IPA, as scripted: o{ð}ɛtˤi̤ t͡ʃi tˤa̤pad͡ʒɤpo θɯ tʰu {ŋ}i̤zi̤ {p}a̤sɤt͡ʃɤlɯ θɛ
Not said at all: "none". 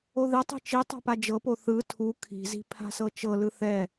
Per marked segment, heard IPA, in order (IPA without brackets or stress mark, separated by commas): ð, kʰ, pʰ